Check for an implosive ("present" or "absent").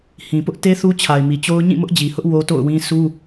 absent